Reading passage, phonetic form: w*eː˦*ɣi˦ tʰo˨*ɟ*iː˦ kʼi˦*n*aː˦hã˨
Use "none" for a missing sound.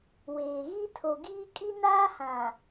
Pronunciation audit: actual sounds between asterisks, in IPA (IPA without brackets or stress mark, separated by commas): eː˨, ɡ, n